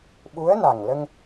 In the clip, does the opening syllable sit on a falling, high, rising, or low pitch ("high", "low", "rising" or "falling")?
rising